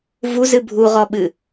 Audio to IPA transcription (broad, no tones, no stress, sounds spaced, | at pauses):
v u z ɨ bʱ u ʁ ɔ ɓ ɨ